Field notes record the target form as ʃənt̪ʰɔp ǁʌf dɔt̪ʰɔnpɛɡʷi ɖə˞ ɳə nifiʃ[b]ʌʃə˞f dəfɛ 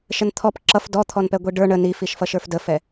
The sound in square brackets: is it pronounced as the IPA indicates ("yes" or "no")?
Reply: no